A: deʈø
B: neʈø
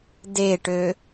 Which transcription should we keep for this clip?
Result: A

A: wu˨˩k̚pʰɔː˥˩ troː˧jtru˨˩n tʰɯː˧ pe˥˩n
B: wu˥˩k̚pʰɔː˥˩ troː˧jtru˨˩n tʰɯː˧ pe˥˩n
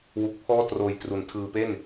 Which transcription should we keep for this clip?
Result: A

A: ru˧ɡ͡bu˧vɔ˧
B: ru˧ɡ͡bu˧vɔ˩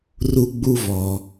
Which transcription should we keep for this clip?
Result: B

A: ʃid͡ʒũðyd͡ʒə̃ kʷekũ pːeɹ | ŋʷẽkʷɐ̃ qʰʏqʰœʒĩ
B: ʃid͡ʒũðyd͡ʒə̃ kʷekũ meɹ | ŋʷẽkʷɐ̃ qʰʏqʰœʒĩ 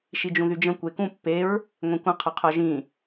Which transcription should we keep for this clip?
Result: A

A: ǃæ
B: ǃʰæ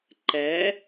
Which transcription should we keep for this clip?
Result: A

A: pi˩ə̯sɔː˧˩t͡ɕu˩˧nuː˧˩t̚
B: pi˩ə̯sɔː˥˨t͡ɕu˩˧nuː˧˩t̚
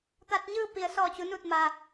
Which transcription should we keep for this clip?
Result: A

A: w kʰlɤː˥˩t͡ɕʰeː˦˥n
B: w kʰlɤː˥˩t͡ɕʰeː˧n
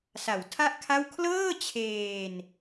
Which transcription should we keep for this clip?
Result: B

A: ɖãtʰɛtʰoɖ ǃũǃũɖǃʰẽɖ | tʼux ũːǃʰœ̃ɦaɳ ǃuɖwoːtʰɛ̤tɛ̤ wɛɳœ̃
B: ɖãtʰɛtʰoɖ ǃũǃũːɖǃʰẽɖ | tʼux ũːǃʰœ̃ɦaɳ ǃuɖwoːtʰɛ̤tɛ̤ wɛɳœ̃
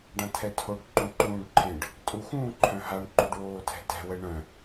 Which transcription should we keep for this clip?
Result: B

